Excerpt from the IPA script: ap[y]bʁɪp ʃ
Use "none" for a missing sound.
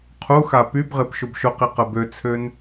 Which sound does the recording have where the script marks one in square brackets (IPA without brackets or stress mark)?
y